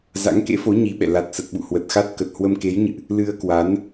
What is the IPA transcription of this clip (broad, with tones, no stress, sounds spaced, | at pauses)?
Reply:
z a̰˧˥ ŋ k ḛ˧˥ f o˨˦ ɲ i˨˦ ɓ ɛ̰˧˨ l a˨˩ t̚ s ə˨˩ t̚ ɓ ṵ˧˨ h w ə˨˩ t̚ x a˦˥ t̚ k ə˨˩ t̚ h w ə˧ m k e˨˦ j ɲ ɨ̰˧˨ ʔ | l ɨ˧ ə̯ k w a˨˦ n